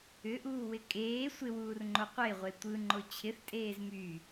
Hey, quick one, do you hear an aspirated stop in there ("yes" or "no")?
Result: yes